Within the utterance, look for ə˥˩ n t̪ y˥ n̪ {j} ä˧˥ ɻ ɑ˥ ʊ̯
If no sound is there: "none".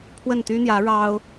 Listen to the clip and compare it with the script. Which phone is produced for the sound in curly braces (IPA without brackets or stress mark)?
j